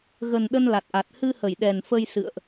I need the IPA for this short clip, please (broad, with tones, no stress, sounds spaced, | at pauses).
ɣ ə˨˩ n ɗ ə˧ n l a˨˩ t̚ ʔ a˨˩ t̚ h ɨ˧ h ə˧˩ j ɗ ɛ˨˩ n f ə˧ j s ɨ̰˧˨ ə̯ ʔ